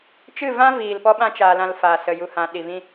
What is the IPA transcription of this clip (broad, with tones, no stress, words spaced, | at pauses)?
t͡ʃɨ˦˨vã˦viː˨l pɔ˦ɓã˦ t͡ʃaː˧lã˧lfaː˨ sə˨ju˨hã˨ ɗi˨vĩ˧